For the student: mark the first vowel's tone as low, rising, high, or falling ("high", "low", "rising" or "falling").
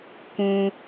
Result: low